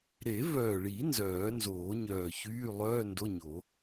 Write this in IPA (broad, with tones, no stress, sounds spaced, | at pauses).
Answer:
ɾ e˨˩˦ v œː˨˩ ɭ i˨˩˦ n z œː˨˩˦ n z oː˨˩˦ ɲ œː˨˩ ç yː˧˥˧ lˠ œː˧˥˧ n d o˧˥˧ ɲ o˨˩˦